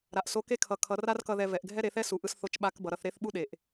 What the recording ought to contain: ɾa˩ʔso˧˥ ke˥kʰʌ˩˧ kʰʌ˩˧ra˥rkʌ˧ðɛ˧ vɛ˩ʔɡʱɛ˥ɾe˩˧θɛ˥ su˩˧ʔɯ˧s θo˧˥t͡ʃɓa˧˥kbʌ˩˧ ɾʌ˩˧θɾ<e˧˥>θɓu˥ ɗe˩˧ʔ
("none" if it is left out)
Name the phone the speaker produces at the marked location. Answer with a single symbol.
e˧˥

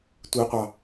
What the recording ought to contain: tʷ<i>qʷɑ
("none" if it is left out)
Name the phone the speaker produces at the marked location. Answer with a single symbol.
i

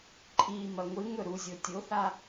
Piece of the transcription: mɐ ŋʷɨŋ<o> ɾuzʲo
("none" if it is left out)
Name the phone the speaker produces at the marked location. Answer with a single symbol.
ɵ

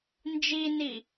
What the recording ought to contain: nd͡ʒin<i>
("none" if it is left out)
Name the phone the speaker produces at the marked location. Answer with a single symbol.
i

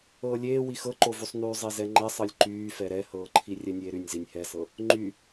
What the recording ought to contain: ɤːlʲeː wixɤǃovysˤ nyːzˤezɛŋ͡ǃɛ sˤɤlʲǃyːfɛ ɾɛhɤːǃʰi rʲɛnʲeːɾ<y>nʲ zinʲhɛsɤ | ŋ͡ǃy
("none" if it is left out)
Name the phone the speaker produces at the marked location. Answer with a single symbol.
y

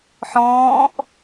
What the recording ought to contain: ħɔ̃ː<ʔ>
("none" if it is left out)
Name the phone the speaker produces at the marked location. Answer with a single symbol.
ʔ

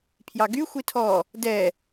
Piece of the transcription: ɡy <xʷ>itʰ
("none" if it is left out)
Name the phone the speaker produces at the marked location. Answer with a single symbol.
xʷ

